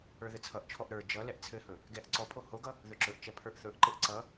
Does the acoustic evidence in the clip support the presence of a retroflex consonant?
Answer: no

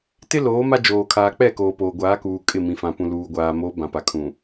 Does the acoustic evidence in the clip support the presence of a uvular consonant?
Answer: no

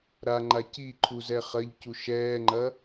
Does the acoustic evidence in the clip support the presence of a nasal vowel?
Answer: no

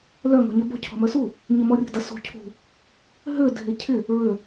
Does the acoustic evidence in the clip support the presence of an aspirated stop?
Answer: yes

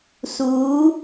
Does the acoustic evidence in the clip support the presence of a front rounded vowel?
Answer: no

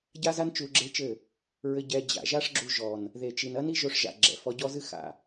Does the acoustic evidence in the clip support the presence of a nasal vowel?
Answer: no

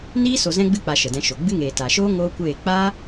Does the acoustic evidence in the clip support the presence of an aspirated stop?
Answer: no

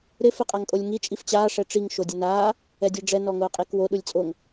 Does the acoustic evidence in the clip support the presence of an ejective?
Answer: yes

